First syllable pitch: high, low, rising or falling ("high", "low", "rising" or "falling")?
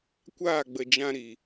falling